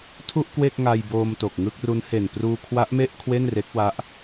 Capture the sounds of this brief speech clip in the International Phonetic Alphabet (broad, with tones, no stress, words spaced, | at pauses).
tʰu˥˩ʔkwe˥˩k̚ŋa˧jboː˧m to˨˩k̚ŋɯ˥˩k̚ ru˦˥nhe˨˩n pruː˧kʰwa˦˥ʔme˥˩ʔ kʰwe˥˩nre˦˥k̚wa˦˥ʔ